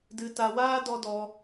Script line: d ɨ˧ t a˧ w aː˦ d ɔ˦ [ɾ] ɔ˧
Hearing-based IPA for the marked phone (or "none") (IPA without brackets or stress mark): d